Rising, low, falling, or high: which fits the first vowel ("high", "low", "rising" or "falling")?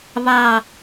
falling